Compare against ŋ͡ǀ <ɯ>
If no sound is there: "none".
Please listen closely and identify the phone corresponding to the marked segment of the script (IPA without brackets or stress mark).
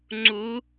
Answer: u